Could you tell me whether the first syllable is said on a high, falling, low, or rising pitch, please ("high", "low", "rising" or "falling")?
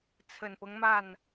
low